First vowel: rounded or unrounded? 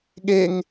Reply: unrounded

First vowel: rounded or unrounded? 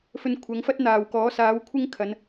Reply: rounded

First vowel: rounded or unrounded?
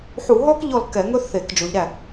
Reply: rounded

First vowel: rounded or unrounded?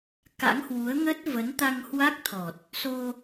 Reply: unrounded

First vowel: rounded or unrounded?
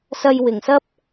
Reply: unrounded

